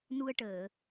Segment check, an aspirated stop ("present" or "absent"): absent